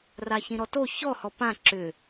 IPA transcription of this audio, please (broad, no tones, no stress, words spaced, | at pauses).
raçĩɾɔto çɔhɔ pã ǁʏ